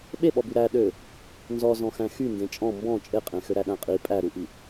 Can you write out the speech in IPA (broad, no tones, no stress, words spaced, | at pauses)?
ɓeɓɔby ɾæ ɗø | nzɔzɔ̃xæ̃ xyndẽ t͡ʃʼɔ̃ mbɔ̃ t͡ʃʼeqʼẽxø ɾæɗæ̃qʼi pʼæɾuʔi